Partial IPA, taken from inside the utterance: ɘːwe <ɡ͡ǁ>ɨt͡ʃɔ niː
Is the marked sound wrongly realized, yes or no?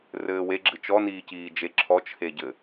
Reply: no